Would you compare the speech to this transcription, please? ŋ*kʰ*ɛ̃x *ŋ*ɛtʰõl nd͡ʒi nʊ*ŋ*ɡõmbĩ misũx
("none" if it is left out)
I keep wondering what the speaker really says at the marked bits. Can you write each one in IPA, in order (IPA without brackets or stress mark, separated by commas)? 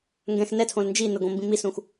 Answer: ɡ, n, none